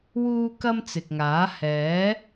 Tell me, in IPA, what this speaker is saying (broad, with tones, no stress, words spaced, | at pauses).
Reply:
wuː˥kɐ˥mt͡sɪ˨k̚ŋaː˨˥ hɛː˨˥